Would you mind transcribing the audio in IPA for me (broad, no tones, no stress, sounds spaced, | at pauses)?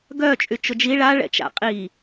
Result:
ɡ œ t͡ʃʼ y t͡ʃ ʊ d͡ʒ i ɭ a ɭ ɛ̰ t͡ʃ a̰ qʼ i